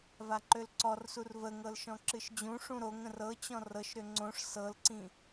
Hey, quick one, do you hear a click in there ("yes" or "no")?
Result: yes